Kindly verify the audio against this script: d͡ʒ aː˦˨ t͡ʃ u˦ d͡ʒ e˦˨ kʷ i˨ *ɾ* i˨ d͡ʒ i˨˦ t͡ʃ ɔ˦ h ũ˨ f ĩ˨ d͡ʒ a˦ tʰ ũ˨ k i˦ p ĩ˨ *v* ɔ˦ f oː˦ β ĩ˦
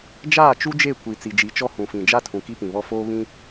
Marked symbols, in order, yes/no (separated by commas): no, no